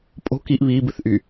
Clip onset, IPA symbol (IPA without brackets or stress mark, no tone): pʼ